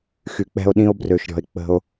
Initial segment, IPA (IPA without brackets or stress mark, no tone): x